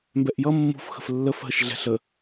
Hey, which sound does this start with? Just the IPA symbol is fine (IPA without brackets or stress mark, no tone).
m